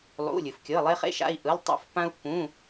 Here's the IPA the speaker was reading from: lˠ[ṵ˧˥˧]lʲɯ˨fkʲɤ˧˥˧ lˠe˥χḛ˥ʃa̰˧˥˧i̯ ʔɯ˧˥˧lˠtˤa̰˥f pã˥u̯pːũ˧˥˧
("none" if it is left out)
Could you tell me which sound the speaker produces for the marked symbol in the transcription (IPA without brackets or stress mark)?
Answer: ṵ˧˥˧